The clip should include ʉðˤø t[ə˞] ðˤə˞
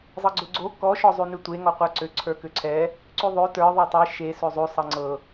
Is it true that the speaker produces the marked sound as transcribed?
yes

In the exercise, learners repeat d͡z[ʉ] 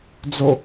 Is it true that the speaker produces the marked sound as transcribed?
no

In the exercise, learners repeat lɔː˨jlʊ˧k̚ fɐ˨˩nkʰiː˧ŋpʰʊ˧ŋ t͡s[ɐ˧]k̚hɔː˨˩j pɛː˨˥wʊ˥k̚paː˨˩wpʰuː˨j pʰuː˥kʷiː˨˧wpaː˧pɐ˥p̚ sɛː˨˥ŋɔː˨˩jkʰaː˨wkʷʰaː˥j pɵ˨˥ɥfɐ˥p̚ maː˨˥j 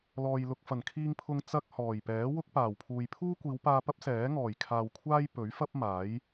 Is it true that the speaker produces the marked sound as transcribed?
no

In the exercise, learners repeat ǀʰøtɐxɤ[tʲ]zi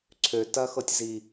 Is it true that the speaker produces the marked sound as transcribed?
yes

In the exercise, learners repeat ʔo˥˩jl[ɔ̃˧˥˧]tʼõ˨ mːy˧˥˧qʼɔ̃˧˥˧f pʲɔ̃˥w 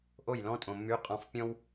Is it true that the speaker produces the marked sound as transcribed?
yes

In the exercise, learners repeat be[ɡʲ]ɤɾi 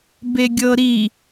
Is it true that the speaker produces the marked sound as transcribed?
yes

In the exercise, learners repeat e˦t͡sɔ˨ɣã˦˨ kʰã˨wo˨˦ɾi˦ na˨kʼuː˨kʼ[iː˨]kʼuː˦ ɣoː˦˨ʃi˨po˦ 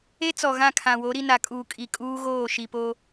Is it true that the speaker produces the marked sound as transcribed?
no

